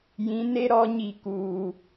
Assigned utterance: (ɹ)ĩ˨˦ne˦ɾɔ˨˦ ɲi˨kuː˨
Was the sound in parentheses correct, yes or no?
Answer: no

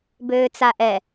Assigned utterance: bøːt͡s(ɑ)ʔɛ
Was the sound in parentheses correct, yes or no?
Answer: no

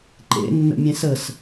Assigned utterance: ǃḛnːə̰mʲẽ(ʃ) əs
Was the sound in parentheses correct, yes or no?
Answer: no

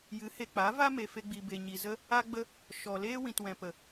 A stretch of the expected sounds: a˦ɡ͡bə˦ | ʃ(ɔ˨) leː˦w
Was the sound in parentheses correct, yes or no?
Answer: yes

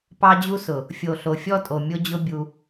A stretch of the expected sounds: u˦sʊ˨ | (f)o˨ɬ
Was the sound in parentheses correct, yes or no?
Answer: no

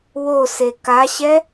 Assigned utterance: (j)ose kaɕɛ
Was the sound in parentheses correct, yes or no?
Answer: no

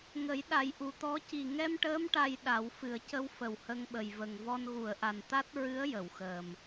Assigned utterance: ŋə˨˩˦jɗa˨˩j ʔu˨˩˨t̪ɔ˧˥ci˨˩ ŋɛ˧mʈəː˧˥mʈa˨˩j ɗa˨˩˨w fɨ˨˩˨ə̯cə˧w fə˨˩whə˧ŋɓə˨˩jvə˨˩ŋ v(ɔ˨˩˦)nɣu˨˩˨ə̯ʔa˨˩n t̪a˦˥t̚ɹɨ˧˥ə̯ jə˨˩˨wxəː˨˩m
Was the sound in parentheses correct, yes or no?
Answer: no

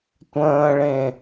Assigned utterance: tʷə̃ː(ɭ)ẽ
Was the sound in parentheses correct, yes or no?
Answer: yes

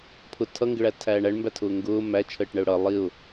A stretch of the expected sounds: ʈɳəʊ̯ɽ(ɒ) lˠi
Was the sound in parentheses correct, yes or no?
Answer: no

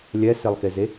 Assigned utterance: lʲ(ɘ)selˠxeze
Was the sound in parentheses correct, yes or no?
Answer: no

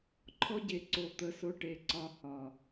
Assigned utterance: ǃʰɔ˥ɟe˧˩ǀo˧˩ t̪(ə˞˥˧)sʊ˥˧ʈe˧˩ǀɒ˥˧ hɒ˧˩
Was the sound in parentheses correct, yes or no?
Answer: no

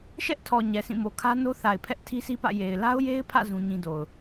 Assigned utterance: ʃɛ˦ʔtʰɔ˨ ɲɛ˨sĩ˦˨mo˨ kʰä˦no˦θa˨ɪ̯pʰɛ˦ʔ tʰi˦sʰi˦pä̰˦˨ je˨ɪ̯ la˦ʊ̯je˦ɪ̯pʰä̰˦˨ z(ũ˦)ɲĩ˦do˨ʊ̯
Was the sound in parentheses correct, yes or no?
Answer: yes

